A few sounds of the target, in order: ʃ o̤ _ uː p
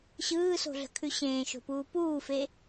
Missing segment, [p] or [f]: p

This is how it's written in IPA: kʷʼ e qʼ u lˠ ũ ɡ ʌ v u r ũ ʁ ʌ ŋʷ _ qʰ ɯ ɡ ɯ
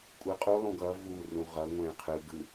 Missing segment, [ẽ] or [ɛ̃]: ɛ̃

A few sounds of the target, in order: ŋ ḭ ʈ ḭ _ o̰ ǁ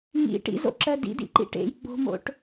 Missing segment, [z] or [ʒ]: z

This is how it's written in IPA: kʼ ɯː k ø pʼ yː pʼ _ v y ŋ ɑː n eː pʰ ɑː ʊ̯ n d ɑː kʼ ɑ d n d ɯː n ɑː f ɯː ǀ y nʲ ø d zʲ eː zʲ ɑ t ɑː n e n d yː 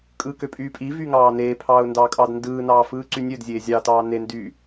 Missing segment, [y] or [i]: i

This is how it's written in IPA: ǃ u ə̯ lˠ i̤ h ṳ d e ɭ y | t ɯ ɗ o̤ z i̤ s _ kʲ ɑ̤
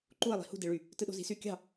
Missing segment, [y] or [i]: y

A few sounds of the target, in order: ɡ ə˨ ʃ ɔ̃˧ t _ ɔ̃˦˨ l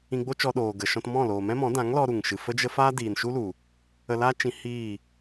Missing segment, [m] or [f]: m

